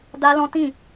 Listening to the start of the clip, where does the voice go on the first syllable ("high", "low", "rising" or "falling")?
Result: high